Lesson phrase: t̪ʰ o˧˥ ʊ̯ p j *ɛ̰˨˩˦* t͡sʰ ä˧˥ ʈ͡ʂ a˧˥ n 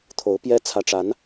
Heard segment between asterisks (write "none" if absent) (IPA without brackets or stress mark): ɛ˥